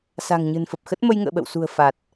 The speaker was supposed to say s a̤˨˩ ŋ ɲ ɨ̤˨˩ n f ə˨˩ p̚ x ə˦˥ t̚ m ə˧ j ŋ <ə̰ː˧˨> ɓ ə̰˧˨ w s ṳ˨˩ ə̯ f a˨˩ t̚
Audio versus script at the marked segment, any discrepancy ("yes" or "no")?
no